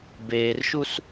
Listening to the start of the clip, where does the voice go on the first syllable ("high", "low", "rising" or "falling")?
low